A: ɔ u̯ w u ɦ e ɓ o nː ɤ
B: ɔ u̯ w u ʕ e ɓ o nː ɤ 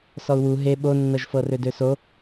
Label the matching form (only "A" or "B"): A